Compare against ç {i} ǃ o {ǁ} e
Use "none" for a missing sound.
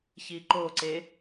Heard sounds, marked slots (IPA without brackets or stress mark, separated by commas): i, ǀ